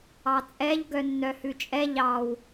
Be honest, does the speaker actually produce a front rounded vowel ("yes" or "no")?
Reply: yes